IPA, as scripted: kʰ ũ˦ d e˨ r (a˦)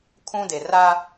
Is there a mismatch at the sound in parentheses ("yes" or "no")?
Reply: no